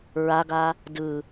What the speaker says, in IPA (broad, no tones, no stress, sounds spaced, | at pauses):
ɹ a ɡ a | d ɯ